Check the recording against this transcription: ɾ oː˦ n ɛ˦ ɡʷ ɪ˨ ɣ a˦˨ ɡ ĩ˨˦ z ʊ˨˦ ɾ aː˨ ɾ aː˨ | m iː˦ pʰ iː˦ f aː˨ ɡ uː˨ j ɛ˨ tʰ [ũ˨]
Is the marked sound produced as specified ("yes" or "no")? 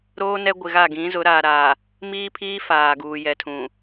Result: yes